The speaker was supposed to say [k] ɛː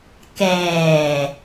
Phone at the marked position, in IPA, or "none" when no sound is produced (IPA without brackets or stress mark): k